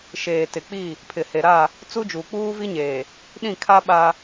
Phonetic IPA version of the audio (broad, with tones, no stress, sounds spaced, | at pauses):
ʃ eː˨ t ɪ˨ k͡p i˦˨ | pʰ ɪ˨ h e˨ ɾ a˦˨ | t͡s u˦ d͡ʒ uː˨ k͡p uː˦ v i˦ ɲ eː˨ | ɗ ĩ˦˨ kʰ a˦ ɓ a˦